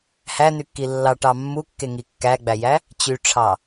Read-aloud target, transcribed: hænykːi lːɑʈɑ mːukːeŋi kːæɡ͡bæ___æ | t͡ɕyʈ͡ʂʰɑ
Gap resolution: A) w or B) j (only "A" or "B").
B